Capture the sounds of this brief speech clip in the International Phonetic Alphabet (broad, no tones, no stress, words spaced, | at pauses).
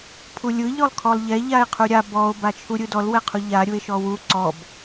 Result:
pʰulʲɯ ʎɔlˠkʰɔlˠʎɛ ʎae̯qʰuɾʲa bɔo̯ bat͡ʃʰuɾʲɯdɔl wɛqʰuʎa ɾʲue̯ʃɔwu ǀɔb